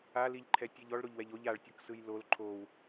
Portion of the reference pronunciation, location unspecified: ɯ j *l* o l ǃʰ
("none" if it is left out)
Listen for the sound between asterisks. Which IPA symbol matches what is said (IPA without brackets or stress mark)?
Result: l